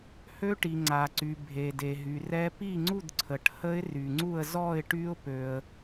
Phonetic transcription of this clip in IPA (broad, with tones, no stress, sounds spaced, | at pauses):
h ø˦˥ ʈ i˩ ŋ͡ǀ a˩ ǀ y˩ bʱ e˩ d e˩ ɦ y˩ r ɛ˦˥ p i˥˨ ŋ͡ǀ u˥˨ d ǀʰ ə˩ ʈ h ə˦˥ ɪ̯ r y˩ ŋ͡ǀ u˥˨ ə̯ z ɔ˥˨ ɪ̯ ʈ y˦˥ ʊ̯ p ø˩ ə̯